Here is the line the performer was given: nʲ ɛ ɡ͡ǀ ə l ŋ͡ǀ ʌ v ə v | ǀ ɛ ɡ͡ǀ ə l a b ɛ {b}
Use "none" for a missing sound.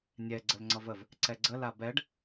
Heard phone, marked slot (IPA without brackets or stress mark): ɖ